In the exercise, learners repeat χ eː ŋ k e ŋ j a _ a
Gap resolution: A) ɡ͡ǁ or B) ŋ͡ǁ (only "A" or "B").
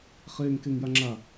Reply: B